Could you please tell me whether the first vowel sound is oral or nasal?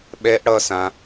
oral